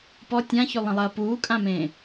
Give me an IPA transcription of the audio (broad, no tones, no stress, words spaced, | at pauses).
pɔ tʲãçylˠə̃lˠɐː puːkʼãmẽː